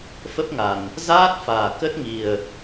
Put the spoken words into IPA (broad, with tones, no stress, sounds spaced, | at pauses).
f ə˦˥ p̚ ŋ a˨˩ n | z aː˦˥ t̚ f aː˨˩ k ə˦˥ t̚ ŋ i˨˩ ə̯